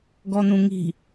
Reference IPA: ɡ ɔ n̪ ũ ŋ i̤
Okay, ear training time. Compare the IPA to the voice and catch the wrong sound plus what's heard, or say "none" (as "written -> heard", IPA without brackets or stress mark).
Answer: none